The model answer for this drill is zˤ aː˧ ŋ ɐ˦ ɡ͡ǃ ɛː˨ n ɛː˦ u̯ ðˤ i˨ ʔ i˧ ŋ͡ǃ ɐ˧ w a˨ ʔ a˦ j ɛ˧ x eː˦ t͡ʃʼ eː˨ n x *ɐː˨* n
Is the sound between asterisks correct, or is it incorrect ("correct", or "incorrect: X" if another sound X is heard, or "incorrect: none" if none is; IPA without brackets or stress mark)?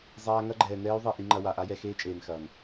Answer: correct